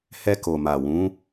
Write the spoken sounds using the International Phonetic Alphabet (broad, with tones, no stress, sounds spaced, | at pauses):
h ɛ˧ k o˨ m a˨ w ũ˨˦